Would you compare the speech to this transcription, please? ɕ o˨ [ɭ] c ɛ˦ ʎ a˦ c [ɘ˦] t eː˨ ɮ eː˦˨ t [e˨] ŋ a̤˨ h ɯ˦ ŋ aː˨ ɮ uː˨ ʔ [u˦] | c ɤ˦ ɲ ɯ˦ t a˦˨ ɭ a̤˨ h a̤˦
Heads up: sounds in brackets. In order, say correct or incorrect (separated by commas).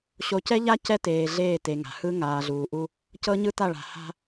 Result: incorrect, incorrect, correct, correct